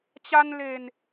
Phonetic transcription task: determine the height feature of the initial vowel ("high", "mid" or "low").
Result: low